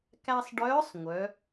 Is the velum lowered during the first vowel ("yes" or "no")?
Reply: no